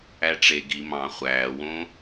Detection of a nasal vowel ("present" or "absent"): present